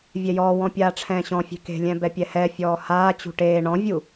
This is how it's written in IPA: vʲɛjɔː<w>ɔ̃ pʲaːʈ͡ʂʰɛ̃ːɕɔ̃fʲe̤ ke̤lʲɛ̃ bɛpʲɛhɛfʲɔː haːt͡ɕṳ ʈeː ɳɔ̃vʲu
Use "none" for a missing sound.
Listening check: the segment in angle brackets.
w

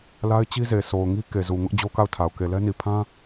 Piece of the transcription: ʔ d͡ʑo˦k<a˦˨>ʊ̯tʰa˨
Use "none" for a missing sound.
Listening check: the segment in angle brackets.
a˦˨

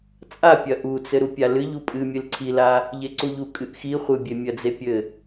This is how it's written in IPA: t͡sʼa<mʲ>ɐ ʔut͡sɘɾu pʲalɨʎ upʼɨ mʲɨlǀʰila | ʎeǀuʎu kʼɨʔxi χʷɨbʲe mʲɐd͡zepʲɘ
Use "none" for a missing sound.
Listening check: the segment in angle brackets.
pʲ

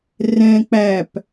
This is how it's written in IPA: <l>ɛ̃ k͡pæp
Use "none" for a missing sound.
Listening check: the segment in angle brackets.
r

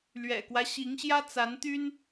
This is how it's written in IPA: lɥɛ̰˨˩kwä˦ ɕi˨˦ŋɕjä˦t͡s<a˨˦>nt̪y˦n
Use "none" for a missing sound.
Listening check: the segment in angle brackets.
a˨˦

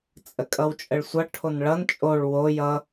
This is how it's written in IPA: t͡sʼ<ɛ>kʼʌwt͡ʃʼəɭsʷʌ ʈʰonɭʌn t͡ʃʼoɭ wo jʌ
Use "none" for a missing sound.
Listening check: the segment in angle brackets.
ə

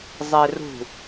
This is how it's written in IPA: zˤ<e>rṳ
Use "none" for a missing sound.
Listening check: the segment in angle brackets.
e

